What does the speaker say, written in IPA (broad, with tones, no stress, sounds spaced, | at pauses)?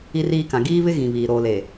i˦ r iː˦ k ã˨ ɡ iː˦ β ɪ˦ ɣ ĩ˨ β iː˨ ɾ oː˨ l e˨